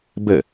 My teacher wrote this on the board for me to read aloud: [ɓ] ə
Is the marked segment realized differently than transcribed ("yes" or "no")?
yes